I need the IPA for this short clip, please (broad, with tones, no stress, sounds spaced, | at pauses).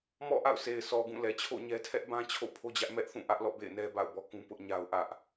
m ɔ̰˦˨ ʔ a̰˦˨ ʊ̯ s e˨ ɪ̯ s ɔ˨ ɡ ũ˦˨ l ɛ˨ t͡ɕʰ o̰˦˨ ɲ ɛ˦ tʰ ɛ˦ ʔ b ã˦ t͡ɕʰ o̰˦˨ pʰ o˦ d͡ʑ ä˦ ʔ m ɛ˦ ʔ θ ũ˦˨ ʔ ä˦ ʔ l ɔ̰˦˨ b ḛ˦˨ ɪ̯ n ɛ˦ b a̰˦˨ ʊ̯ b ɔ˦ k ũ˦ p ʊ˦ ʔ ɲ a˦ ʊ̯ ʔ ä˦ ʔ